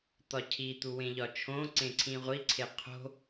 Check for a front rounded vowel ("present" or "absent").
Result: absent